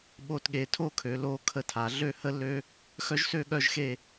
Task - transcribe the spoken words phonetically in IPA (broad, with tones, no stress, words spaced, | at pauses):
ɓo˧tɠe˩˧tʰo˥˧kʰø˩˧ lo˧ kʰə˧˩tʰa˩˧ ɮø˥˧hə˥lːø˥ | xœ˥ʒsø˥˧ɠœ˥˧ʒ xe˥˧